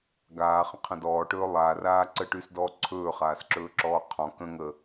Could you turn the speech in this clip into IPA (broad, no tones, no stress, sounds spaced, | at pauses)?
ɡ aː χ ə̃ qʰ ə̃ d ɔː ʈ ɵː lˠ aː r aː ǀ ə ʈ yː s d ɔː ǀʰ ɵː χ aː s ǁ ɵː ǁ ɔː qʰ ɔ̃ k ə̃ ŋ ə